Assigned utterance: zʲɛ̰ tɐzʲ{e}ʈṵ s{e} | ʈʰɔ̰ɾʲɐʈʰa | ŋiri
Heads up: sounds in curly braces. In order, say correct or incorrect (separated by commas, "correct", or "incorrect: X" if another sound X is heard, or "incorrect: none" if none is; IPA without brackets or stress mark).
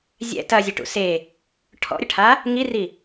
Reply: correct, correct